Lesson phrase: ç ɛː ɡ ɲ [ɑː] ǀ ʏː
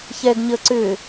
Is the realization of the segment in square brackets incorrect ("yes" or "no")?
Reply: yes